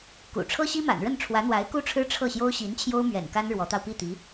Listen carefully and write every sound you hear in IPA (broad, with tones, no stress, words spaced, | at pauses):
kṵ˨˩ ʈ͡ʂʰɤ˥ɕi˥ma̰˨˩nɻə˥˩n ʈ͡ʂʰwä˧˥n̪wa˧˥ɪ̯ku˥ʈ͡ʂʰɻ̩˥ ʈ͡ʂʰɤ˥˩ɕjo˥ʊ̯ ɕi˧˥n t͡ɕʰjo˥ʊ̯mɥɛ̰˨˩nka˥n ɻwɔ˧˥t̪ɑ˧ʊ̯ pi˥˩t̪i˧˥